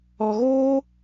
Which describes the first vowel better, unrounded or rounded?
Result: rounded